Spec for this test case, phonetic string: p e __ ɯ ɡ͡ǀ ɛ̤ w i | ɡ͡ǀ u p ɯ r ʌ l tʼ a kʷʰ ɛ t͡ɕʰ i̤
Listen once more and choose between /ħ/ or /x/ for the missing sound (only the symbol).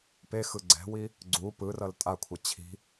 x